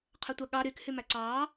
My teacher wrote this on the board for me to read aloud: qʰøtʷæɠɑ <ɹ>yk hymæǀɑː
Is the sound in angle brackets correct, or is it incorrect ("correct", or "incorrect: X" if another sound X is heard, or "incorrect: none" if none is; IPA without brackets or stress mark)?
incorrect: ɾ